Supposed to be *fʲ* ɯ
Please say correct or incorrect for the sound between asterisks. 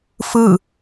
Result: incorrect